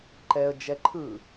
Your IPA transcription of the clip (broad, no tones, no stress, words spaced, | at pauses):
ǃɛə̯ d͡ʒɛǃʰɯ